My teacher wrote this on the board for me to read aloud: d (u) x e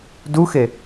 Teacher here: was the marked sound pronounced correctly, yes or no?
yes